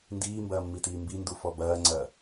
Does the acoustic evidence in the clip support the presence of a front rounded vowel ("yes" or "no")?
no